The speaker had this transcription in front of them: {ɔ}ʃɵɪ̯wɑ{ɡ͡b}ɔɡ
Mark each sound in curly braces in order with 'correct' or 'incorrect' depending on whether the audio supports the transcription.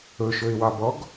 incorrect: ɵ, incorrect: b

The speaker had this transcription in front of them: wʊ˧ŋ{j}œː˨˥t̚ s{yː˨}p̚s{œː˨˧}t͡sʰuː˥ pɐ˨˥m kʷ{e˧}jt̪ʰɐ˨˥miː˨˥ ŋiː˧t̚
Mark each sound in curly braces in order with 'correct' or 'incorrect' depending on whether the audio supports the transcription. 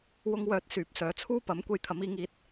incorrect: w, correct, correct, correct

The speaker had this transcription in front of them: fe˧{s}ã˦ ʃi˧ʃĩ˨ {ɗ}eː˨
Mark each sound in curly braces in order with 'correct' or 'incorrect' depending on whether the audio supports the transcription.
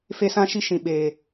correct, incorrect: ɓ

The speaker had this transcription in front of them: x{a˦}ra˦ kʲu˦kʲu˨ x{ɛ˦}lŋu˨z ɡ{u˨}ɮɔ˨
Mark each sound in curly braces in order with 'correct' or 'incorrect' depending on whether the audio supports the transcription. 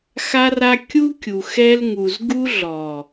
correct, correct, incorrect: u˦

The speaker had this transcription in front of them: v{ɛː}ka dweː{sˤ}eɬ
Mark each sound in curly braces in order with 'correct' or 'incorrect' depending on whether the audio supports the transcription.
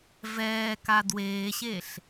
correct, incorrect: ɕ

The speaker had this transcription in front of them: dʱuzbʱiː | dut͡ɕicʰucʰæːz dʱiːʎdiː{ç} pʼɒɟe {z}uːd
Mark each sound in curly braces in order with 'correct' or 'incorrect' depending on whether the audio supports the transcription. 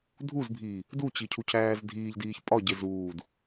correct, correct

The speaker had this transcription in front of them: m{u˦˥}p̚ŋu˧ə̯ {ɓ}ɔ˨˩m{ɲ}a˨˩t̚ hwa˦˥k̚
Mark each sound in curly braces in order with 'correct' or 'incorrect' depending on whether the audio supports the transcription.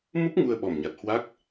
correct, correct, correct

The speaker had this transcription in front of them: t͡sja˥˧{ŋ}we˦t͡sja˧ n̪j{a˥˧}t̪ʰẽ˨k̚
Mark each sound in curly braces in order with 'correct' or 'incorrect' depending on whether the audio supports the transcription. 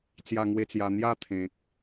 correct, correct

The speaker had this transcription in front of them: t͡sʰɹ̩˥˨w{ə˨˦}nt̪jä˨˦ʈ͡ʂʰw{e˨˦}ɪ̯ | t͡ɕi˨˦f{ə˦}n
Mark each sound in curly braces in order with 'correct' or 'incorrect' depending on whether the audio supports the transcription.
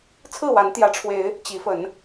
incorrect: a˨˦, correct, incorrect: ə˨˦

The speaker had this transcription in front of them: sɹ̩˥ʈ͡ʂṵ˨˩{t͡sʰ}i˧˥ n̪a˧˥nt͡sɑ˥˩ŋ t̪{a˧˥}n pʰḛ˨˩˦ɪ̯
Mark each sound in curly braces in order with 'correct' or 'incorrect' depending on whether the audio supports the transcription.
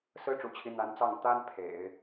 incorrect: t͡ɕʰ, incorrect: a˥

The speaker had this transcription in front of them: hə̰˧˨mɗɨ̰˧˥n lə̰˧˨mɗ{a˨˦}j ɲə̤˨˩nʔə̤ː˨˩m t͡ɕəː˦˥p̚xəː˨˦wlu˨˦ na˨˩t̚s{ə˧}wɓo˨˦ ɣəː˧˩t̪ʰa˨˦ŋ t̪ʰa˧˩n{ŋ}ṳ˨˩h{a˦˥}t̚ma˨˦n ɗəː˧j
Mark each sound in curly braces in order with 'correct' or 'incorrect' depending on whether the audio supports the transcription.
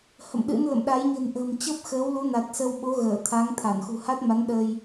correct, correct, incorrect: x, correct

